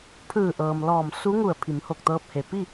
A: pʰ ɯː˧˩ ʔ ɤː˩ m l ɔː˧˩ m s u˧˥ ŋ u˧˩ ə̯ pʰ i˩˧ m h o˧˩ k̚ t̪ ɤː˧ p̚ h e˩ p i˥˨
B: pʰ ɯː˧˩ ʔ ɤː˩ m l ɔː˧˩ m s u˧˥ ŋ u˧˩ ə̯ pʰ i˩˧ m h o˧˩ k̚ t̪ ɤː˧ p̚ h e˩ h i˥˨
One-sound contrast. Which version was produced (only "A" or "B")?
A